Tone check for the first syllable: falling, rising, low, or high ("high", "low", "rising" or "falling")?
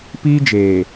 high